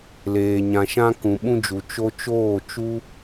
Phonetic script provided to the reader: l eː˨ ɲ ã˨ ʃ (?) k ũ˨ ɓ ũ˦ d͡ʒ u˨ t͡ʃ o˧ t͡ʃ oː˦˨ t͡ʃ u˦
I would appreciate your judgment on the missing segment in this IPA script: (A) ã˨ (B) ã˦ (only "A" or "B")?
B